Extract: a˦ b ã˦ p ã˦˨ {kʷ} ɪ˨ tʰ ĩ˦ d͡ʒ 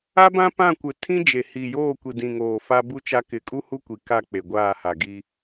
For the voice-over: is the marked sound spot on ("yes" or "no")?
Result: yes